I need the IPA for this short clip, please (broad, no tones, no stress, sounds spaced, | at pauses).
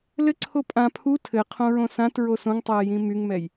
l ɘ ǀʰ o pʼ ã pʰ u tʰ ɘ qʰ õ ɹ õ s ã t ɹ o s õ ŋ tˤ ɛː j ĩ m y ŋ m ɛ j